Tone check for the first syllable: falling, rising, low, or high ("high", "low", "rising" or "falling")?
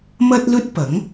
high